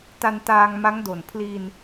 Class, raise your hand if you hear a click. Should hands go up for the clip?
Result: no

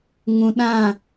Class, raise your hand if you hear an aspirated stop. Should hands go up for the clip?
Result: no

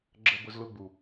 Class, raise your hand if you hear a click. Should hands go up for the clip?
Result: yes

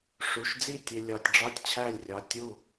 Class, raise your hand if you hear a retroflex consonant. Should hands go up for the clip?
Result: yes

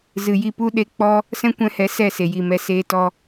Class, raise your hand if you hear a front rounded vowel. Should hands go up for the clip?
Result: no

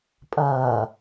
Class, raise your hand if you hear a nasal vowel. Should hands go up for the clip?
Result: no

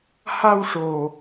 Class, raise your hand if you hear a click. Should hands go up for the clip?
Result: no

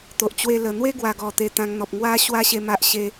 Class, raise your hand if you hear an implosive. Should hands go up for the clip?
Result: no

